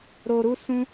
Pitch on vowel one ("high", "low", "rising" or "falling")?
low